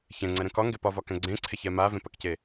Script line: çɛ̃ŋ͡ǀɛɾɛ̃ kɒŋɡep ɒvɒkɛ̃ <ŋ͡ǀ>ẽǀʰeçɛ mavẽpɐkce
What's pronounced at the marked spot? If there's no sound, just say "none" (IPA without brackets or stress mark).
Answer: ɡ͡ǀ